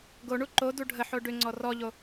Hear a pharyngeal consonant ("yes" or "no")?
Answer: yes